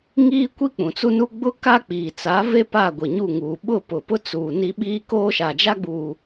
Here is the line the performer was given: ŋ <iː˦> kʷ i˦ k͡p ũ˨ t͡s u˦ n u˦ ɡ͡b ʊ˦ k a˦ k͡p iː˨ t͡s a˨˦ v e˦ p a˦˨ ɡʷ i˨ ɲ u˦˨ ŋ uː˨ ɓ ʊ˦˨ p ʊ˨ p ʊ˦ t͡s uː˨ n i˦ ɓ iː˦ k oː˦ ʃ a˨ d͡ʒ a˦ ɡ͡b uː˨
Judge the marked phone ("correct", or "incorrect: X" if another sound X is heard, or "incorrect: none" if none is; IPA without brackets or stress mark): correct